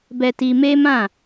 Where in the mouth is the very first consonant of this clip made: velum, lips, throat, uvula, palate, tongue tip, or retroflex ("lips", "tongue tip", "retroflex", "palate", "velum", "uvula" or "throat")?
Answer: lips